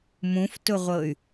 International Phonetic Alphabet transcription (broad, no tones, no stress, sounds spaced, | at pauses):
m ũ f t ʊ ʁʷ ɤ y̯